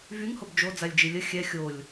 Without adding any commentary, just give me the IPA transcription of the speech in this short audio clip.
v y ŋ h o b d͡ʒ o d͡z a lʲ d͡ʒ i lʲ ə xʲ ɛ xʲ o lʲ

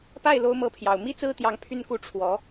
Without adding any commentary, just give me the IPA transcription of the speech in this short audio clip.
p a˥˩ ɪ̯ l o˧˥ ʊ̯ m ɤ˧˥ pʰ j ɑ˨˩ ʊ̯ m i˥ t͡s ɹ̩˥ t̪ j ɑ˧˥ ŋ pʰ y˥˧ n k u˥˩ ʈ͡ʂʰ w ɔ˧˥

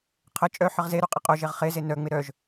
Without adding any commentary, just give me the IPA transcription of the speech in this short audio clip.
qʰ ə t͡ʃʼ œ ħ ə ʁ z e ɾ u qʼ ɪ qʼ o ʒ e ʁ χ e z e n œ ŋ͡m ɪ ɾ œ ʒ

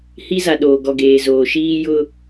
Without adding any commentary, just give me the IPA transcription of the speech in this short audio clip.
h i˦ z a˨ ɗ oː˨ ɡ ɔ˨ ɡ eː˨ z oː˨ ʃ iː˦ j ʊ˦

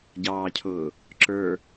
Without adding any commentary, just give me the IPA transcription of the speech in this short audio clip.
ɟ ɑː cʰ ʊː | ǁ ə˞

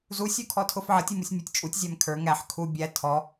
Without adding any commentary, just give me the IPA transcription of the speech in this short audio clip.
z u sʲ u kʰ ɔ tʰ ʊ f ʕ ʌ tʲ u m u sʲ mʲ ʊ tʲ t͡ʃʼ u tʲ zʲ æ m kʰ ə˞ ŋ æ ħ kʰ u bʲ æ tʰ ɔ

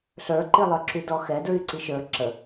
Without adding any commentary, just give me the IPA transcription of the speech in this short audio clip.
ɬ ə˞ ǃ i lˠ ə˞ ǁ y d ɔ x ɛ d ɹ y ǀ i ʃ ə˞ ǁ ə

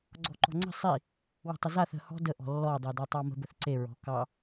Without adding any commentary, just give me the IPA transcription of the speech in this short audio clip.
ɡ͡ǀ ɔ̤ ǃ ɔ̤ ŋ͡ǀ ə̤ sˤ i | w ə̤ tˤ ə z a θ ə̤ h ɔ̤ d ə ʔ ɔ̤ lː ɔ dˤ o d a tˤ ɑ m ə̤ b ə θ ǀ e ɹ ɔ̤ k ɑ

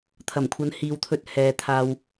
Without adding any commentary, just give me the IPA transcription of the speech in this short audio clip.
t̪ʰ ɐ˨˩ m kʷʰ ɐ˨˧ n h iː˨ w t̪ʰ ɵ˧ t̚ h ɛː˨ t̪ʰ aː˧ w

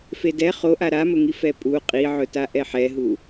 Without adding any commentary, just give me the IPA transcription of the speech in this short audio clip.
f e d ɛ χ o ʔ a ɾ a m ɵ ŋ i f ɛ pʼ u qʼ i ʕ ɵ t a ʔ ɛ ħ ɛ ɦ u

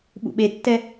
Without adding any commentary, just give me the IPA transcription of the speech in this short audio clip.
ɓ ṵ ɓ e tː ɛ

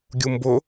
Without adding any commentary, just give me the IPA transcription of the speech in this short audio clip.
ɡʲ u m b ʊ

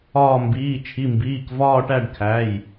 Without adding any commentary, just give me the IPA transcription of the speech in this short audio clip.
ɒː˦˨ m b iː˩˧˩ t͡ʃʰ i˩˧˩ m b iː˩˧˩ k v ɒː˦˨ ʈ æ˦˨ ɖ kʰ æ˩˧˩ j

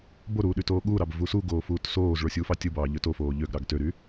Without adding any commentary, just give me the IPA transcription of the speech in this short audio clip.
b o ɾ uː ɗ y t oː ɠ uː ɾ ɑ b v u s u ɡ oː f uː t s oː z ɭ o sʲ u f ɑ tʲ ɯ b ɑː ʎ ø t o f oː ʎ ø ɡ ɾ ɑ ɡ t ø ɾ y

